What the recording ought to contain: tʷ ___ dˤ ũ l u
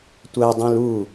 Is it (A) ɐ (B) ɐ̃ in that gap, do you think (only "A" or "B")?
A